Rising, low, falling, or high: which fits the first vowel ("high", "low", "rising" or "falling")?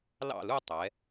falling